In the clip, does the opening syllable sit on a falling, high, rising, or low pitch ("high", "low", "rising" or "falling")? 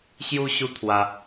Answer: high